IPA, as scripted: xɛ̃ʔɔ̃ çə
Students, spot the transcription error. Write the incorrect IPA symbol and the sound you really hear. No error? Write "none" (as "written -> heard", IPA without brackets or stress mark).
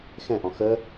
ç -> x